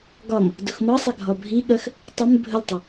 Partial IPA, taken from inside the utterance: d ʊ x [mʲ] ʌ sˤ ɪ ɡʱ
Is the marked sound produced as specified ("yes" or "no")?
no